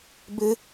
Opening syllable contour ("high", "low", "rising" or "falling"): high